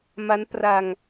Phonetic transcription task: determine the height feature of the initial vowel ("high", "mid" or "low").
low